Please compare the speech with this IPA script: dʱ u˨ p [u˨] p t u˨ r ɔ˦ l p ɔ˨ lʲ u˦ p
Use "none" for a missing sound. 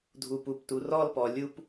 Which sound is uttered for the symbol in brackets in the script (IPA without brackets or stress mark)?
u˨